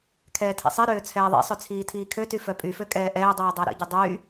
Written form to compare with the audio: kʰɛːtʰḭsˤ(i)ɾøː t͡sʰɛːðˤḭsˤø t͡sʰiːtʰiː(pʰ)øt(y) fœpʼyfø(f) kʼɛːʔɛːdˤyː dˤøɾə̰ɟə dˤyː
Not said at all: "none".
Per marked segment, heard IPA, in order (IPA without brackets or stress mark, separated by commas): i, kʰ, y, none